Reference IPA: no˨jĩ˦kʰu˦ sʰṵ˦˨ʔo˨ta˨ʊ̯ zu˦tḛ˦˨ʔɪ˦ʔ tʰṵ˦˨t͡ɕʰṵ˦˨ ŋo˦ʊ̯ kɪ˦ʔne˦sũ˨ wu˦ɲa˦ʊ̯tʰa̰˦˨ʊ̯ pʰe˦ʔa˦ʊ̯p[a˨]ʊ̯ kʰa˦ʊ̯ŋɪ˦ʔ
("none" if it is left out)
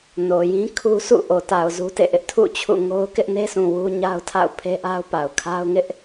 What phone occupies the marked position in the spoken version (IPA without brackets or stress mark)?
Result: a˨